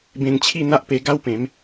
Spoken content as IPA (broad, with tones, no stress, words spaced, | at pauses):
bẽ˧ŋt͡ɕʰi˥˧n̪a˦ʔpe˧ ɡa˦wpẽ˨˦m